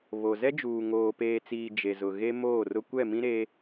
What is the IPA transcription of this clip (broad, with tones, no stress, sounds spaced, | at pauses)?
β o˨ z ɛ˦ d͡ʒ uː˨ ŋ oː˨ p eː˨ t͡s iː˨ d͡ʒ e˨ z ʊ˨ ɣ e˦ m oː˦˨ r ʊ˦ kʷ ɛ˦˨ m ĩ˦ ɾ e˦